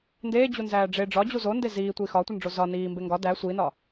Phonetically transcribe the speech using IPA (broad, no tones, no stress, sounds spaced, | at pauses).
n d eː d͡ʑ u n z æː ɖ͡ʐ e ɖ͡ʐ ɒ d͡ʑ u z o n d e z iː tʷ iː x ɒ tʷ i n ɖ͡ʐ o z ɒ n iː m b e ŋ ɡ ɒ d æ sʷ i n ɒ